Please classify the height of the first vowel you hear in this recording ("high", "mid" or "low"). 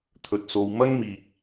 mid